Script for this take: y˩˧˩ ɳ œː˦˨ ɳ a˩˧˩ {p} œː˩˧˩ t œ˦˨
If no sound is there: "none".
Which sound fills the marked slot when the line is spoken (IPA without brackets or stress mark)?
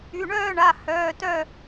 h